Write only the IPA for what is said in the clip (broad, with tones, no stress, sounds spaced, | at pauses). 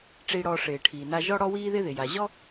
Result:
ʈ͡ʂ i˧ ɽ ɔ˧ ʂ ɪː˩ ʈʰ iː˩ n a˧ ʒ ɔ˥ ɽ ɔ˥ w iː˥ ð ɪː˥ ð ɪ˩ j a˩ ʑ ɔ˥